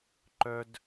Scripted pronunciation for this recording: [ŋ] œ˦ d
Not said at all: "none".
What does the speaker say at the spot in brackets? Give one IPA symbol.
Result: ǃ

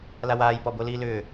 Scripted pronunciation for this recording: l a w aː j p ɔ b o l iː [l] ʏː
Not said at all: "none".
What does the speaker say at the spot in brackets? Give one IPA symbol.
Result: l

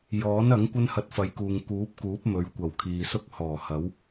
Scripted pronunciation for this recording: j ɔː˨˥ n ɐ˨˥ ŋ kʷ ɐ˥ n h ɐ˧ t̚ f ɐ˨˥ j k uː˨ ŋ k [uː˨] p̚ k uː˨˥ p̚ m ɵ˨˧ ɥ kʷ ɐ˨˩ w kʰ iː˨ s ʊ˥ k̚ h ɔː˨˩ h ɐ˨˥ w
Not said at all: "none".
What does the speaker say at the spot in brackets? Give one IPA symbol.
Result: uː˨˥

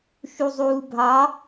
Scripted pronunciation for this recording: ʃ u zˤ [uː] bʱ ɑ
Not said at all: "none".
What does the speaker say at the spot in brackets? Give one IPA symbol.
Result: uː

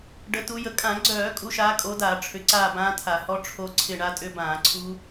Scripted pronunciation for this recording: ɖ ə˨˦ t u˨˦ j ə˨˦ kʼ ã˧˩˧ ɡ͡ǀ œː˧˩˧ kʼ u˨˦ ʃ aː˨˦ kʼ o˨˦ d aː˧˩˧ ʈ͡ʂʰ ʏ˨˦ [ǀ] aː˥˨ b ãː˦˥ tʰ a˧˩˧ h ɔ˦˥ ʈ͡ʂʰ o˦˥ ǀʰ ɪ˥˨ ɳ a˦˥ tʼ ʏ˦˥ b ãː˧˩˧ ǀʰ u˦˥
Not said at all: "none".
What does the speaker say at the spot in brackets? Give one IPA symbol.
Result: ǀ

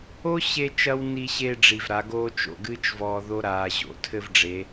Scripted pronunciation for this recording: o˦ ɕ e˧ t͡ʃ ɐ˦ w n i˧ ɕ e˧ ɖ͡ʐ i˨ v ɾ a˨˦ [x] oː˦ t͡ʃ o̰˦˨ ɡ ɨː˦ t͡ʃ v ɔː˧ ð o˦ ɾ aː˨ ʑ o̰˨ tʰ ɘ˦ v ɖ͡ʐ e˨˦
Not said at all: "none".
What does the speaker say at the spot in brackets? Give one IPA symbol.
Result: ɡ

